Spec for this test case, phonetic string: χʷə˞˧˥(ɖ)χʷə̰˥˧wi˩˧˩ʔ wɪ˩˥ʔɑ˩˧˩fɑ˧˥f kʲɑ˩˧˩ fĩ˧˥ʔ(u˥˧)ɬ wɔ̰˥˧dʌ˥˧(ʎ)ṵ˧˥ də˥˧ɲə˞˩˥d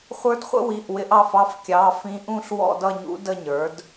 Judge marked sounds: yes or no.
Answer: no, no, no

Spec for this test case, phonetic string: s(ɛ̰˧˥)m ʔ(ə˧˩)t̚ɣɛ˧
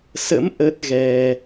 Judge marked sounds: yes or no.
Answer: no, no

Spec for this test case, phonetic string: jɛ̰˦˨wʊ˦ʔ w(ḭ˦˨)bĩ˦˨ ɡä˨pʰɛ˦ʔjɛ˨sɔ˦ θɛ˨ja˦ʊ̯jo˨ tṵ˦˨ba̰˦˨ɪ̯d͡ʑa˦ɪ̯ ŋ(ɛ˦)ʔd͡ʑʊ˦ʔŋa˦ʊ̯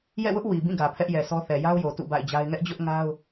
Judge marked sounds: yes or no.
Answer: no, yes

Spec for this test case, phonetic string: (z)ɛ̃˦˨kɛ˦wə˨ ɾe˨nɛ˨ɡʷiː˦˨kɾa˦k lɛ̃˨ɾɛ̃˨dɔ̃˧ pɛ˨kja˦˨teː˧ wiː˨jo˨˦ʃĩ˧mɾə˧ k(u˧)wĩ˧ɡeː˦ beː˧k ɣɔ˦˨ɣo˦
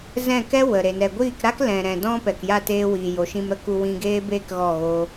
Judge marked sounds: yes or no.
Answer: yes, yes

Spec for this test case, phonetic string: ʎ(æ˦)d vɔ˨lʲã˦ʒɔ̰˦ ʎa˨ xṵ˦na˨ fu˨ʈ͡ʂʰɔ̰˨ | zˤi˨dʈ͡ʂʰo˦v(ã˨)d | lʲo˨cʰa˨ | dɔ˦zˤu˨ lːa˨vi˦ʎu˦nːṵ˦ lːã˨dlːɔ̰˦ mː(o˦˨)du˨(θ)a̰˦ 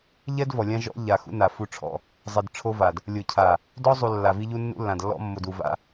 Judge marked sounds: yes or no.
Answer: no, no, no, no

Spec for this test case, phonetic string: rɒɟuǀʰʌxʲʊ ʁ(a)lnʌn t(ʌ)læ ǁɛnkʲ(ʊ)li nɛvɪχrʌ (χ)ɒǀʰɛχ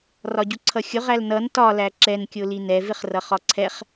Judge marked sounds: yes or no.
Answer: no, no, yes, yes

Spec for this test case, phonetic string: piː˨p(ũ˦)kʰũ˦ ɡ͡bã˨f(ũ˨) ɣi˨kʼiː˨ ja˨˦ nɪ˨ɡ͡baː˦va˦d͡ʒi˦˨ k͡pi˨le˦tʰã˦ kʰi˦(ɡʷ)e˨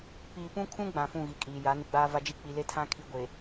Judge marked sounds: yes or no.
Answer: yes, no, yes

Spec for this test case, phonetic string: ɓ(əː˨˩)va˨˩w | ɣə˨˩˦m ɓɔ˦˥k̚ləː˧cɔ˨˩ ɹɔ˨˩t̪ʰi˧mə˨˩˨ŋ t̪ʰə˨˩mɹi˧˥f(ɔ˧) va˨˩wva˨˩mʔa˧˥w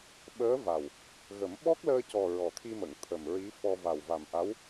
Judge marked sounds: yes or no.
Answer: no, yes

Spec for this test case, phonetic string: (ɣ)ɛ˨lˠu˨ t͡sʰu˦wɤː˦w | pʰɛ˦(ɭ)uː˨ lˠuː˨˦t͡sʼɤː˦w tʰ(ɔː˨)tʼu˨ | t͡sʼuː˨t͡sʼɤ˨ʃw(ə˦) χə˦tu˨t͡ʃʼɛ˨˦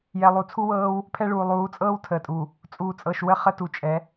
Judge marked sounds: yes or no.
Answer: no, yes, no, yes

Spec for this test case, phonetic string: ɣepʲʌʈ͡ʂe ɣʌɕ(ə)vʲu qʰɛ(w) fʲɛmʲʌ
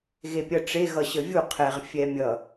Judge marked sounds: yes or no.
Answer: yes, no

